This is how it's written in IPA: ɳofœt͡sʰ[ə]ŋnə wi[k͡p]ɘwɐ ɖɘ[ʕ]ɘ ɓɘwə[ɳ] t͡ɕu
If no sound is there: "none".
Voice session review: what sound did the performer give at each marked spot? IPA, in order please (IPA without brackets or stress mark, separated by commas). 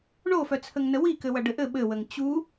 ə, k, ʔ, ŋ